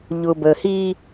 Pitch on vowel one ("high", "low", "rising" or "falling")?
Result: low